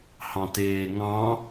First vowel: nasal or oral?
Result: nasal